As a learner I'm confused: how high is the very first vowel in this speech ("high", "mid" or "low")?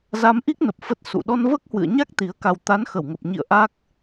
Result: low